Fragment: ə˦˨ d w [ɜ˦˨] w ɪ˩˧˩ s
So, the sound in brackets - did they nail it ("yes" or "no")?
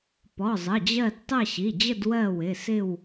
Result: yes